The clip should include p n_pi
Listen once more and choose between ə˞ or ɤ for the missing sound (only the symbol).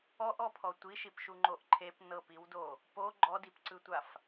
ɤ